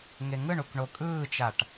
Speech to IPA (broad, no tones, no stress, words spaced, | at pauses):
ŋeŋɯɳuk ɳokʼɯːt͡ʃaʈ